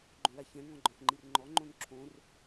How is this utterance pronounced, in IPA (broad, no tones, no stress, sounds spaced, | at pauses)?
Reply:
ɡ͡ǃ õ l a ç ɛ̃ ŋ ɔ̃ ɡ͡ǃ ɔ̃ x ŋ͡ǃ i r ŋ͡ǃ ɔ ŋ͡ǃ õ n ǁʰ õ r